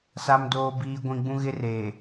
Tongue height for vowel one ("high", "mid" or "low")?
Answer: low